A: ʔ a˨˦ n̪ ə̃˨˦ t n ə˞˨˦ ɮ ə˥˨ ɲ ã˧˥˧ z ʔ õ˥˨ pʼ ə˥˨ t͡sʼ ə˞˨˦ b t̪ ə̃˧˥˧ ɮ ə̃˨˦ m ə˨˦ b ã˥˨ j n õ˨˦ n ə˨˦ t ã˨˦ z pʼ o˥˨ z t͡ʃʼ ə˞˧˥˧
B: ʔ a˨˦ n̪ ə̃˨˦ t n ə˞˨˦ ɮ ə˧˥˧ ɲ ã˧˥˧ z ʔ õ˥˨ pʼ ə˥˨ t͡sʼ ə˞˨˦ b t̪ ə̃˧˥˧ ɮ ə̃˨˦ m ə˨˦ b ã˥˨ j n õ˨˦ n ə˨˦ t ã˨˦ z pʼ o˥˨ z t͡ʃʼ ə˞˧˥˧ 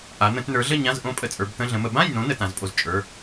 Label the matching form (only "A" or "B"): A